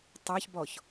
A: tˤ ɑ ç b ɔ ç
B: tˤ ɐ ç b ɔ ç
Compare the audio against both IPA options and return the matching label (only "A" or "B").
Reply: A